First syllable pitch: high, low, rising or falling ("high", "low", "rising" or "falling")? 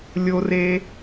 high